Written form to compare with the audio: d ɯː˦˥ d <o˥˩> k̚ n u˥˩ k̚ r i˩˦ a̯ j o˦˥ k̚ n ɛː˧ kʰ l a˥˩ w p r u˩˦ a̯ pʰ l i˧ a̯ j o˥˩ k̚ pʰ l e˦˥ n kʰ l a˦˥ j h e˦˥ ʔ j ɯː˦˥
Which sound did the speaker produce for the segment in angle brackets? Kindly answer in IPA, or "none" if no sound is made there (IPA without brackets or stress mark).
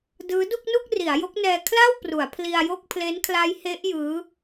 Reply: u˥˩